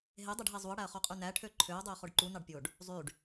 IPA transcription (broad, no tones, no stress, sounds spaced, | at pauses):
ɦ e dˤ e ɖ ɦ e zˤ u ɐ̯ ɽ æ ɐ̯ χ o qʼ y n æ ʈʰ ø ǃʰ ø ɐ̯ dˤ ø ɐ̯ χ o ɖ ǃ u n ɑ ɖ pʲ o ɖ | zˤ y ɖ